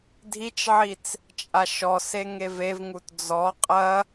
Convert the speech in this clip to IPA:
dʱit͡ʃʕit͡s | t͡ʃʼaʃɔse ŋevevŋut d͡zɔ qʼɐ

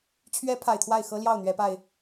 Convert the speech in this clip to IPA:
t͡ɕʰɥɛ˨˦ pʰa˨˩ɪ̯t̪ʰwa˥˨ɪ̯xɤ˦ ljɑ˥˨ʊ̯n̪ɥɛ˨˦pa˧ɪ̯

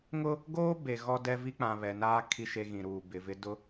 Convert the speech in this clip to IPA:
ŋʊ˦ | ɡoː˦ be˨ ɣɔ˦dɛ˦vi˦k͡pã˨ βɛ˨naː˦ kʰi˦ʃe˦ɣĩ˨ɾuː˨ bɪ˨vɪ˦ dʊ˦

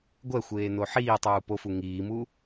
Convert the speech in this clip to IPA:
ɡʷɛxʷeːno ħiːtˤuː pofu ŋiːmu

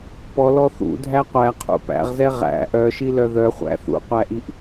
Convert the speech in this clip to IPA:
pɔlɔ θṵdʱæ qʷæqʰṵ pæ̰ʁzɛ ʁæ̰ ʔœʃilœ ðœχʷæ̰ θṵqʷæʔiʔ

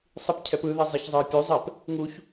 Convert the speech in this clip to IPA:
sˤipcʰɛpɯðɛ zˤaçzˤɯe̯pʲuzˤɛp | ŋuç

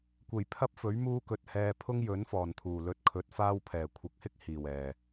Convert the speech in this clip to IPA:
kʷe˨˩jpʰɐ˥p̚fɵ˨˥ɥ muː˥kɵ˧t̚ hɛː˧ pʰʊ˥ŋjɵ˨˥n fɔː˨˩nt̪ʰuː˨˩ lɵ˧t̚kʰɵ˨˥t̚ faː˥wpʰɛː˨˩ kʷʰɐ˨k̚hɪ˥k̚ hiː˨˩wɛː˨˩

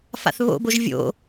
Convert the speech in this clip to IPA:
fa̰θβo̰boʒ vʲo̰

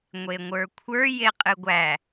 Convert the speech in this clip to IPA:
ŋʷeŋʷə˞kʷʰə˞ jeqʼɨɡʷæ

